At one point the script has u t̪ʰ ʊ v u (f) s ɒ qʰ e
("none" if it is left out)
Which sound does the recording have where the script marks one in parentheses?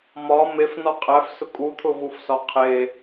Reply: f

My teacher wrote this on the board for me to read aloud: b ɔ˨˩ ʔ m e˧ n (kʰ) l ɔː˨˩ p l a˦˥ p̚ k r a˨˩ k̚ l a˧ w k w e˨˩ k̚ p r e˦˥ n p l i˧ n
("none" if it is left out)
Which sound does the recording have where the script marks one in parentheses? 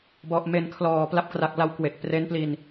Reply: kʰ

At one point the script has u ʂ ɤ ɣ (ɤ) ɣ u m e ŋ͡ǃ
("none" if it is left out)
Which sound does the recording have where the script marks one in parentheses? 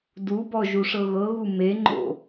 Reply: ɤ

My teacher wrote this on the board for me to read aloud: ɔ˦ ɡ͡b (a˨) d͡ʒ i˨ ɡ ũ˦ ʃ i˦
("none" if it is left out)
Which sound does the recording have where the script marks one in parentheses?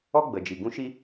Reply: ə˨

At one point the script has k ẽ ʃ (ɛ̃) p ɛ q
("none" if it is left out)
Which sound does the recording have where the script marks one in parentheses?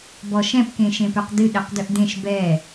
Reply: ẽ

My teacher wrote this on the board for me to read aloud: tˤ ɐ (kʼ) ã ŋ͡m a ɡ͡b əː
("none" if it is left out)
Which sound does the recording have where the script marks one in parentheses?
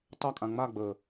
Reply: kʼ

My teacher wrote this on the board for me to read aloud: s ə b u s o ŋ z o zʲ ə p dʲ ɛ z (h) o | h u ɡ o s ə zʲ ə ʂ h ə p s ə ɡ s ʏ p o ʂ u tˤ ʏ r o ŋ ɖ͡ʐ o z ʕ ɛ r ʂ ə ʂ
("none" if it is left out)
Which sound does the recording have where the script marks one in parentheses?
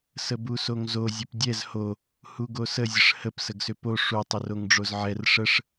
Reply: h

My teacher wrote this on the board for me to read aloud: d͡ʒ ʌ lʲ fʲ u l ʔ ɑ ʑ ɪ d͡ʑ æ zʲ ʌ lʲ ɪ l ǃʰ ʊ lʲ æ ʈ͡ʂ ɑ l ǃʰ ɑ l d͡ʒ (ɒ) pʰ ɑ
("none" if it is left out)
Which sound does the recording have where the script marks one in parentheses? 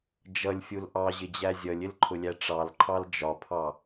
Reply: ɒ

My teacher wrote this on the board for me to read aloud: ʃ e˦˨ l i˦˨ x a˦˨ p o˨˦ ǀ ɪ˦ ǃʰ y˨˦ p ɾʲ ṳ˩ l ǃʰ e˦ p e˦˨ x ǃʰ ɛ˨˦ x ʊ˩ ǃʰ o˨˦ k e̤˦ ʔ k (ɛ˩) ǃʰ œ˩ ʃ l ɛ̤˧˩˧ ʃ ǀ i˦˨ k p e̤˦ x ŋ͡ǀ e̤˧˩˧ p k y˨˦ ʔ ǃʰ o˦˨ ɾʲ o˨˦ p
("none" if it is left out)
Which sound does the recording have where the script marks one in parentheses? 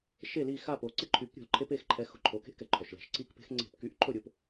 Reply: ɛ˩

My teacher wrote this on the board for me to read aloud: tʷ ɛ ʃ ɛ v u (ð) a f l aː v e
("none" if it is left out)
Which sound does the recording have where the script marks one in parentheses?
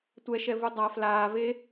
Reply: dˤ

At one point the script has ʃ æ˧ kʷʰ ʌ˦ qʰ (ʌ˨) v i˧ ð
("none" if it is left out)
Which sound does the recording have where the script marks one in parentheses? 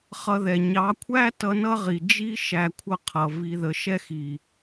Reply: ʌ˨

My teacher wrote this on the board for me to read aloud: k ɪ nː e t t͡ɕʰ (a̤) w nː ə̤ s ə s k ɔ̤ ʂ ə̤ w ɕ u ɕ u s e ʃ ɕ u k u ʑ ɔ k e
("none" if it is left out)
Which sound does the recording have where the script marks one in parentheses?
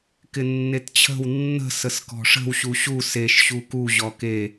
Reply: ə̤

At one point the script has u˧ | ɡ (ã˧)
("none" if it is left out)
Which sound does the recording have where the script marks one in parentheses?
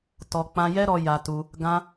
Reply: ã˧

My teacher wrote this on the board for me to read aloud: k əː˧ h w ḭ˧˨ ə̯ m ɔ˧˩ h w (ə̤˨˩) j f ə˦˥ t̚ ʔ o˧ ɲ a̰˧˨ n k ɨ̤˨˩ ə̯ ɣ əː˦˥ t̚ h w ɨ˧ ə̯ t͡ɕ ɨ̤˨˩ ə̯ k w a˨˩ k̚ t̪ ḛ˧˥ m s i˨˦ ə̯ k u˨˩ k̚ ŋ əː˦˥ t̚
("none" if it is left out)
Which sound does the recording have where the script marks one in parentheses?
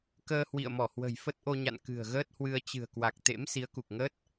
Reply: ə̤˨˩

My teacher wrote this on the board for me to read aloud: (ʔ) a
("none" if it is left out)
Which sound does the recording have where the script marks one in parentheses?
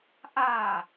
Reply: ʔ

